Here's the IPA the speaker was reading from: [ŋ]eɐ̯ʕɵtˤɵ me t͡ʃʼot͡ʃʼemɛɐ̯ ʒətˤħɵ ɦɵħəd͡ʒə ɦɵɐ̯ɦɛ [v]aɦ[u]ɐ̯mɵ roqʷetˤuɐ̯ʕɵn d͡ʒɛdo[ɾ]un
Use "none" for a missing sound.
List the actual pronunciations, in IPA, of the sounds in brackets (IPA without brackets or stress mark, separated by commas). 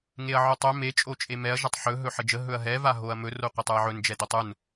ŋ, v, o, tˤ